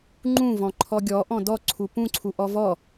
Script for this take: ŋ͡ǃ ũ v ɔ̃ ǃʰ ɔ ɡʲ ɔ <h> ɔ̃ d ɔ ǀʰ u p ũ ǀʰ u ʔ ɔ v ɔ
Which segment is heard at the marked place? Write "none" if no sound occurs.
ʔ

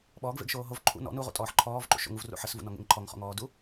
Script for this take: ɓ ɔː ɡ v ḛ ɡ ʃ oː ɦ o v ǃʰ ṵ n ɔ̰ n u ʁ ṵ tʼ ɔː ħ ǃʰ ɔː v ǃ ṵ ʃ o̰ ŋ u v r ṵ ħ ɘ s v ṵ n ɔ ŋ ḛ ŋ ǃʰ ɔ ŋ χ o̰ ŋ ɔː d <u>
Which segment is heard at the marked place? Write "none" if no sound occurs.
u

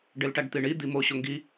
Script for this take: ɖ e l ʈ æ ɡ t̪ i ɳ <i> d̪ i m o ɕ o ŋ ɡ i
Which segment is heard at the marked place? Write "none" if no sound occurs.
i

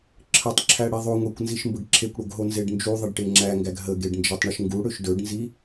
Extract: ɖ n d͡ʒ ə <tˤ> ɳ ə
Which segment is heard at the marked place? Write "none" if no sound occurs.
tˤ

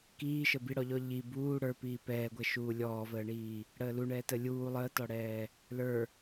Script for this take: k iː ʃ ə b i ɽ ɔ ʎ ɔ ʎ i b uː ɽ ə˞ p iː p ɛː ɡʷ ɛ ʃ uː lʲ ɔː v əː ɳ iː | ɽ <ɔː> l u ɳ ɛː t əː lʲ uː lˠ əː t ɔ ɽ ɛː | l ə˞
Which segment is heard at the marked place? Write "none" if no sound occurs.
əː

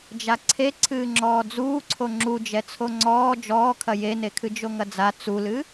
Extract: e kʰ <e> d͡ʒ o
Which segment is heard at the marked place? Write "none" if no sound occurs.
ɨ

